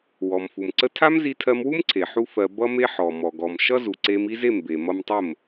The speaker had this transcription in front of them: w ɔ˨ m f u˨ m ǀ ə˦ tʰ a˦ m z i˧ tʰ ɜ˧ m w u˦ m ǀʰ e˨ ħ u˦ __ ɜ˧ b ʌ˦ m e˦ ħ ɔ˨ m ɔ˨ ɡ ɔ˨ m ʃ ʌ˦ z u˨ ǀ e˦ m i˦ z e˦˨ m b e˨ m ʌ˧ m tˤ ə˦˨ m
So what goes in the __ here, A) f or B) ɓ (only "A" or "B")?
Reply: A